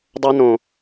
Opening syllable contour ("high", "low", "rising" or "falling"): high